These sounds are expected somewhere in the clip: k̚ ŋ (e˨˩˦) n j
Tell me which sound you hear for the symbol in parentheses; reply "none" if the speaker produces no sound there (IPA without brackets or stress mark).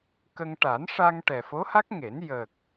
e˨˩˦